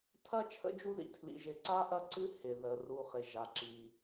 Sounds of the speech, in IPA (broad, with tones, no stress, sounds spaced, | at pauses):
tʰ ɐ˥ t͡ʃʰ ə̰˦ d͡ʒ u˦ ð ḭ˩ tʰ l ḭ˨ ʒ ɪ˨ ǀ a˥ ʔ ɐ˦ ǀ ɨ˥ h ɪ˩ ð ə˩ r u˨ χ ɪ˩ ʒ a˩ ǁ i˩